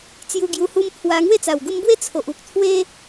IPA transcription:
t͡s j u˧ ɡ j u˧ h u˦ m pʰ w a˧ ŋ w e˥˧ t͡s a˨˩ w ɡ u˧ m b w e˦ t͡sʰ o˨ ʔ u˨ k̚ t̪ʰ w e˦

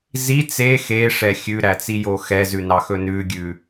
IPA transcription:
z i t͡s e x e ʂ ɛ xʲ ʉ ɾ æ t͡s i j o x ɛ z ʉ n ɑ x ɵ n ʉ ɡʲ ʉ

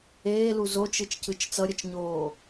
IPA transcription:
eː l u z o t͡ʃ ɯ t͡ʃ c ɯ t͡ʃ t͡s ʌ ɾʲ ʌ t͡ʃ ɲ oː

